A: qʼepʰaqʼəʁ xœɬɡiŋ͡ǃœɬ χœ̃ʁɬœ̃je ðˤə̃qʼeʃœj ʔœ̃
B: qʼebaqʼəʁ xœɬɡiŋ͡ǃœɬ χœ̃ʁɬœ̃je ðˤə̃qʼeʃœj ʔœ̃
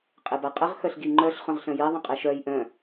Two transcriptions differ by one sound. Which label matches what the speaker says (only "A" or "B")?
B